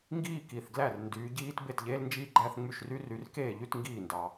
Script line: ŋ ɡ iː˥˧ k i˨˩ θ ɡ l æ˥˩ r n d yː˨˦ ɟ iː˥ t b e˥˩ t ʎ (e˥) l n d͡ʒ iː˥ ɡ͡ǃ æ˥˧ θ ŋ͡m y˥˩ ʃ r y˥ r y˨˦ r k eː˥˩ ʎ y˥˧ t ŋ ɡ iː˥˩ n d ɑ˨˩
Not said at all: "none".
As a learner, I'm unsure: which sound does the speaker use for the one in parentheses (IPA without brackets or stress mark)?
eː˥